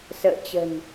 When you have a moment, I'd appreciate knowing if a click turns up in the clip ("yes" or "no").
no